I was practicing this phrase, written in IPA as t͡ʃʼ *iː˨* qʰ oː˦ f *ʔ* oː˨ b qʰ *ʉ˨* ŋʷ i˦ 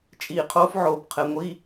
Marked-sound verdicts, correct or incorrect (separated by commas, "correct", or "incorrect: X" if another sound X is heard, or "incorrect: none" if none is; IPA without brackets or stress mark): correct, incorrect: ʕ, incorrect: ɘ˨